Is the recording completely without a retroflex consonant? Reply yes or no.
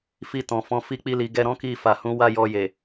yes